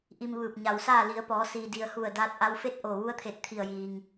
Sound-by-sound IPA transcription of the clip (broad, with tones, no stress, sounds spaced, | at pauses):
ʔ i˧ m ʋ ɯː˧˩ p̚ ɲ a˩ w s aː˥˨ l i˩˧ ə̯ p ɔː˩˧ s iː˩ d i˩ ə̯ h u˧˩ ə̯ d aː˧ t̚ ʔ a˧ w f e˥˨ t̚ ʔ o˧˩ ʋ u˧˥ ə̯ t̪ʰ e˧˩ t̚ t̪ʰ i˧˩ ə̯ j iː˩ ŋ